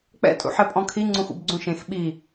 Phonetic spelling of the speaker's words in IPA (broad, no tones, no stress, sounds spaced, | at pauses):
k͡p ɛ̰ tʼ ṵ ħ ɛ pʼ ɔ̃ kʰ i ŋ͡ǀ ũ x ṵ b ɡ͡ǀ ũ ʃ ẽ x ɓ i